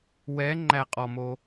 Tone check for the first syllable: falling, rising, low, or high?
rising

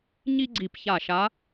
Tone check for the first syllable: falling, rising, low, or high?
high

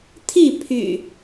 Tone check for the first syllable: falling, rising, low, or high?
falling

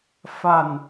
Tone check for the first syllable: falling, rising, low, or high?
low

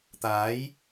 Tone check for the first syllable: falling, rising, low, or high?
rising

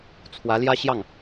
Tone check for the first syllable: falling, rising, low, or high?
rising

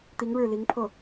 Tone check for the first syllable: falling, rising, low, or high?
rising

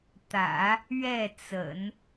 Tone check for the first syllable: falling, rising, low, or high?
low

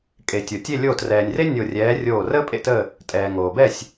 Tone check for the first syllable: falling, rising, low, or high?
low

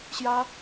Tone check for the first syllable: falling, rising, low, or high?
high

